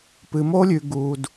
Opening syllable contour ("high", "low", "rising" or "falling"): low